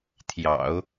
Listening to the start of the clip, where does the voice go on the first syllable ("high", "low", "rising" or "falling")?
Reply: low